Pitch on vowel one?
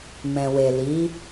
low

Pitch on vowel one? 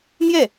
falling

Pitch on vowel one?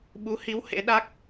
rising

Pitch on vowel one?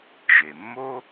low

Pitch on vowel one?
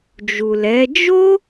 low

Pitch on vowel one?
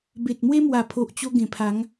low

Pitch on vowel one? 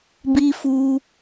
low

